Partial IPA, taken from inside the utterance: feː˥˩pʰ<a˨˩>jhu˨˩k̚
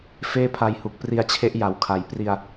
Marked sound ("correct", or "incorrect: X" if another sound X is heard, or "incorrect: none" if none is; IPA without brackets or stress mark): incorrect: a˧